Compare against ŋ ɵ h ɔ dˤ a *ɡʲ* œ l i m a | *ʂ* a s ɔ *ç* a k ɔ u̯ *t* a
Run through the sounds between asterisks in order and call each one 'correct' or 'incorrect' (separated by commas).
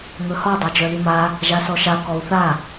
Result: incorrect, incorrect, incorrect, incorrect